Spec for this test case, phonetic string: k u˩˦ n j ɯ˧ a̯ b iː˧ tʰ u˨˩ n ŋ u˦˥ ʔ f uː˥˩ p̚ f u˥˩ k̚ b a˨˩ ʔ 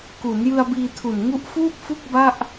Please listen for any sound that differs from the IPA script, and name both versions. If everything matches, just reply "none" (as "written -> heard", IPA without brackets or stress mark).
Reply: a˨˩ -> a˥˩